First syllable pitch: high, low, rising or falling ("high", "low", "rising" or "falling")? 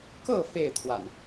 falling